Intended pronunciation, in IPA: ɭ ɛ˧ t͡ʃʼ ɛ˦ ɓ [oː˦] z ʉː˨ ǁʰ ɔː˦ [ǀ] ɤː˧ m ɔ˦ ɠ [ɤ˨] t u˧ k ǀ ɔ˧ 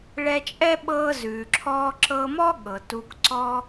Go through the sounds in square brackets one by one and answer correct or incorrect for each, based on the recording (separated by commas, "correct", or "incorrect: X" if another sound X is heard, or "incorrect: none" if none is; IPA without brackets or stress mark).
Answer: incorrect: ɤː˦, incorrect: ǁ, correct